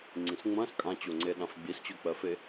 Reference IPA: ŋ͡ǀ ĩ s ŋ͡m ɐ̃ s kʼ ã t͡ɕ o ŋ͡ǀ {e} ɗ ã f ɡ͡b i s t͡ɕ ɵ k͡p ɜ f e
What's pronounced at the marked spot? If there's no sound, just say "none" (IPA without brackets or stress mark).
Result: e